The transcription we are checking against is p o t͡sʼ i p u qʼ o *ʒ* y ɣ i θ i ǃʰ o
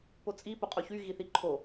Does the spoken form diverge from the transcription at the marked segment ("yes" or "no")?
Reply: yes